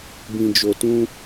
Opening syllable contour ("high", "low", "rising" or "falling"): low